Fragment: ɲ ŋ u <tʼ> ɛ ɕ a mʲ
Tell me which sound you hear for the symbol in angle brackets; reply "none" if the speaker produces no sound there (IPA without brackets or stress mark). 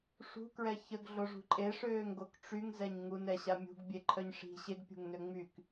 n